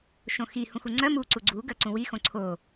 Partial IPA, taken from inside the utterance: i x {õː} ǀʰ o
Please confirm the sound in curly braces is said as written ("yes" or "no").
no